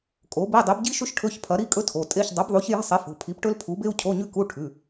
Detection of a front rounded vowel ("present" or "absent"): absent